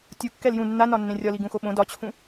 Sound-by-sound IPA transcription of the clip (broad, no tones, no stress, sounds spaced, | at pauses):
tʲ u kː ɛ l j ũ nː a n ɒ nː ẽ rʲ ɒ l i ɡ ũ x o ɓ õ d ɒ t͡ɕʰ ũ